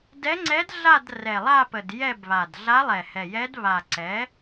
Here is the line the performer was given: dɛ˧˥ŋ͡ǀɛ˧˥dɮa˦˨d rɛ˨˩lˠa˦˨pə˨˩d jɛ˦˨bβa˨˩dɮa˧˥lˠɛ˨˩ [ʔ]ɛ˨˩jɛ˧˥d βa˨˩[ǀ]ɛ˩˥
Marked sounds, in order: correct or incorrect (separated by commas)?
incorrect, correct